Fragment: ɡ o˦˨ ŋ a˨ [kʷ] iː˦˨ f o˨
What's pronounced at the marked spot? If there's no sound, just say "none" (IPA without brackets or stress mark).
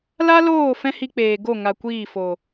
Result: kʷ